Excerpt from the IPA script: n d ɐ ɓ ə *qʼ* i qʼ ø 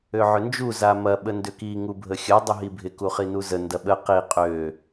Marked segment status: incorrect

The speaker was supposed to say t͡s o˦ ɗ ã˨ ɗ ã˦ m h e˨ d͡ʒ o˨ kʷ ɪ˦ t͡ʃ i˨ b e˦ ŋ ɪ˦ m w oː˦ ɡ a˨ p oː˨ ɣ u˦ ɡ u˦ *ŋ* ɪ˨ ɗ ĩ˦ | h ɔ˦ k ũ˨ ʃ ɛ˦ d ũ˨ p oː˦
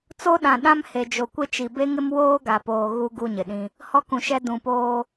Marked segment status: incorrect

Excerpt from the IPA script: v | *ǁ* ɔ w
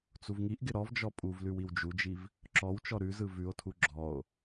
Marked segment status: correct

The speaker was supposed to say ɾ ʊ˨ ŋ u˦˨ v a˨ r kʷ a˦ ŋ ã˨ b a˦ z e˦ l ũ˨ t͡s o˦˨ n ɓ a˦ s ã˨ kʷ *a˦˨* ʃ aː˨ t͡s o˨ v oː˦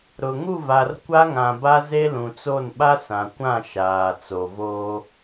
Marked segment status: incorrect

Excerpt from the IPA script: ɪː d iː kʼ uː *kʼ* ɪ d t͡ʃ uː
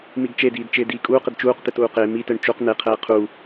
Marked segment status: incorrect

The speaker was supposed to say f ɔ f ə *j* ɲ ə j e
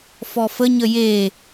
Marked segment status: incorrect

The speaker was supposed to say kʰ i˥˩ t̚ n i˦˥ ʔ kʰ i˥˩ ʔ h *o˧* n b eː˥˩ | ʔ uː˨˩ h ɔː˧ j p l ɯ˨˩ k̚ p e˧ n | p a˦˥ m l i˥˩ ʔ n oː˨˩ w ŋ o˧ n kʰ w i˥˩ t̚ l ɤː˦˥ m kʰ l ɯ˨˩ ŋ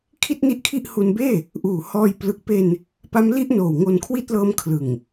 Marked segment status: incorrect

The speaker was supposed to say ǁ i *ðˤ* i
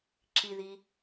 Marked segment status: incorrect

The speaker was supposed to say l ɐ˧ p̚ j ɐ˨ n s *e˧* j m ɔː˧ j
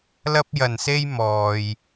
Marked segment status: correct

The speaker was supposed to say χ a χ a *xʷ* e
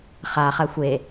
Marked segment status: correct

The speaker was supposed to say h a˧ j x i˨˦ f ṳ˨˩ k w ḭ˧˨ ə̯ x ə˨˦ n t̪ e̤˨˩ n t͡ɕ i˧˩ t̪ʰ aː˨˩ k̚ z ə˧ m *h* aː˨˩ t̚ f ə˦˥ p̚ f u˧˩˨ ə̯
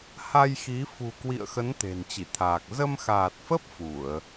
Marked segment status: incorrect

